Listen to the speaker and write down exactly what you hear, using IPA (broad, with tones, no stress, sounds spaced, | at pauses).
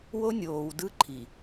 w o˦ nʲ oː˨ w d ɯ˦ ǃʰ i˨